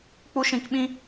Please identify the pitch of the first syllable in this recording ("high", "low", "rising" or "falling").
high